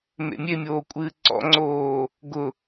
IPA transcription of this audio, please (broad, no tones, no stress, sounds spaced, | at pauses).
m ḛ mʲ e mʲ oː kʷʼ ɨː ǀ ɔ̰ ŋ͡ǀ oː | ɡ ʊ